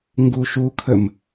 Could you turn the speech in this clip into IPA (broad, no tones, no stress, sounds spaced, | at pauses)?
ŋ ɡ u ʃ u kʰ ə m